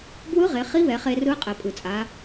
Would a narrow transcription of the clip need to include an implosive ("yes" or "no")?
no